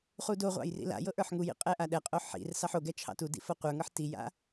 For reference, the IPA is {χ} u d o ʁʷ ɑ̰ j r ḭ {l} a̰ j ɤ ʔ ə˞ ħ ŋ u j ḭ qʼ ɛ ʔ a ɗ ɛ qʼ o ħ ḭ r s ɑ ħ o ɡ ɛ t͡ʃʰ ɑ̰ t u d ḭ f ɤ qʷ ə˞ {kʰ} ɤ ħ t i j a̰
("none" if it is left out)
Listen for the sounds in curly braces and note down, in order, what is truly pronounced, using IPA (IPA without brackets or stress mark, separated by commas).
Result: χ, l, ŋ